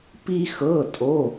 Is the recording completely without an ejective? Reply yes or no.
no